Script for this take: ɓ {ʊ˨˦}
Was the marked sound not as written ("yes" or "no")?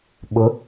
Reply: no